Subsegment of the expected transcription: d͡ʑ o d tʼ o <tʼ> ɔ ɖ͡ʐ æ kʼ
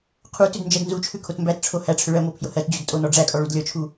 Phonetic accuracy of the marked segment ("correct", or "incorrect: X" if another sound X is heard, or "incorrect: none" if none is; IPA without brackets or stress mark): incorrect: n